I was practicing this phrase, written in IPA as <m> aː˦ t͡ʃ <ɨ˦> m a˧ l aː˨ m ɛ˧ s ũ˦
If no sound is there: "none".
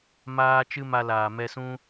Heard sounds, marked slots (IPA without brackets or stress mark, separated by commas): m, ɨ˦